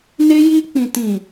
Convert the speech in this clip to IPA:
n e˧ j i˧ k͡p ĩ˨ t ĩ˨

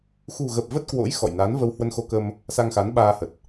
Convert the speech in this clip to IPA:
x ṳ˨˩ ɣ ə˨˩ p̚ v ə˦˥ t̚ k w o̰˧˥ j x ɔ̰˧˨ j n a˨˦ n v ə˧ w h w ə˧ n x o˧ k ə˧ m | s a˧ ŋ x a˨˦ n ɓ aː˧ h ə˨˩ t̚

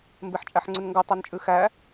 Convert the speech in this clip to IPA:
m b e ħ t͡ʃʼ æ ħ ŋ͡ǀ ʉ n ŋ ɡ ʌ tˤ ʌ n t͡ʃʼ ʉ x æ

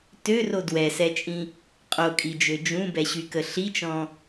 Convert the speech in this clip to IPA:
t ø r o d w ɛ s ɛ t͡ʃʼ ĩ | qʼ o kʼ i d͡ʒ ø d͡ʒ ũ b ɛ ɕ y k ə ɬ i t͡ʃ ɔ̃

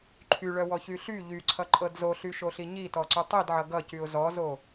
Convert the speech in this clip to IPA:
ǃʰ y ɭ œ w ɔ ç y ɬ y ʎ y ǀʰ ʌ ǃʼ ɤ d z o ɬ y ʃ o ɬ i ɲ i t ɔ ǀ y tˤ i d ʕ ʌ ɡ ʌ c y ʊ̯ z ɔ z o

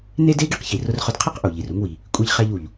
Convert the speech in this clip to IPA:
n e˥ d e˥ ɡ i˥ q ç i˩ r ʊ˧ r χ ʊ˧ d qʰ i˥ q ʔ u˩ ʎ i˩ r u˧ ŋ w i˩ | kʷʼ i˧ ʎ χ ɛ˧ ʎ u˩ ʎ

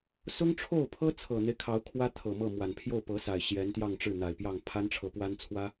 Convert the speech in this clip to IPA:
s ʊ˥ ŋ ʈ͡ʂʰ o˥˩ ʊ̯ pʰ ɤ˥ t͡sʰ ɤ˨˩ n̪ e˦ ɪ̯ kʰ ɑ˧˥ ʊ̯ kʰ w ä˥ t̪ʰ ɤ˨˩ m ɤ˥˩ m w a˨˩ n pʰ j o˥˩ ʊ̯ p ɤ˧˥ s a˨˩ ɪ̯ ɕ j ɛ˧˥ n t̪ j ɑ˥˧ ŋ ʈ͡ʂ ɻ̩˥˩ n̪ a˨˩ ɪ̯ p j ɑ˥˩ ŋ pʰ a˥ n ʈ͡ʂʰ ɤ˧˥ p w a˥ n t͡sʰ w ä˥

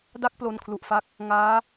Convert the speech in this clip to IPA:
d a˦˥ k̚ p l o˧ n kʰ l u˨˩ ʔ f a˦˥ k̚ | ŋ aː˦˥

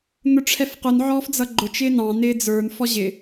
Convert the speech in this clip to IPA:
n̪ ʊ ʈ͡ʂʰ ɛ f q ʊ n ʕ ɔː f d͡z ʌ ɡ͡ǃ ʊ t͡ʃ ɪː n ɑ̃ n ɪː d͡z ə˞ n f ɔ ʑ ɪ

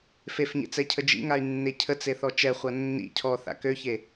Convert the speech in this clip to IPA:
f e f ɲ ḛ t͡s ɛ cʰ ə d͡ʒ ḭ ŋ a y̯ nː e cʰ ə t͡s e θ ɔ t͡ʃ ɛ χʷ a nː ḭ cʰ ɔ θ a̰ k ø ç e

